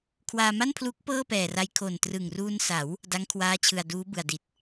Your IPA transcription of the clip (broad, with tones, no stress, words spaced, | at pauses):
kʰwaː˧ma˥˩npʰluː˦˥k̚ pɤː˥˩pɛː˨˩ra˧j kʰo˨˩ntrɯ˨˩ŋruː˧nsa˩˦w | da˦˥ŋkʰwaː˦˥t͡ɕʰɯ˨˩a̯ duː˦˥bɯ˨˩a̯di˨˩t̚